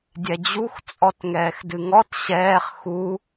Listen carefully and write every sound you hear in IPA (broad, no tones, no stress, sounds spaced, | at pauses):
dʲ ɛ d͡ʑ u x t͡sʼ ɔ t ŋ ɛː x d ɨ ŋ ɔ t ɕ ɛː χ x u